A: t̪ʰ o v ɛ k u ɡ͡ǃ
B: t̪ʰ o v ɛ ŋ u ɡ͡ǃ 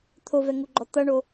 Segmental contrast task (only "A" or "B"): B